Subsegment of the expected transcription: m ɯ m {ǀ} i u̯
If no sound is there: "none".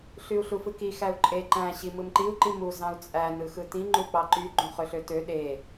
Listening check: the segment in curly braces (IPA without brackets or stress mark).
ǃ